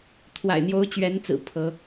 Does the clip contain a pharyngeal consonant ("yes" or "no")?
no